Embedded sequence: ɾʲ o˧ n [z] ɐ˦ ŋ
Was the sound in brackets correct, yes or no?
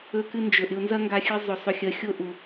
yes